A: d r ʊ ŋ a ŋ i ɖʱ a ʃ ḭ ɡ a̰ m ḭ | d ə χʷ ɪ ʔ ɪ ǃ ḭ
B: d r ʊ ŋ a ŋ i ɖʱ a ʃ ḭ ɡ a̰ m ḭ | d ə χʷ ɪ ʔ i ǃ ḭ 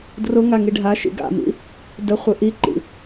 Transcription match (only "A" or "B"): B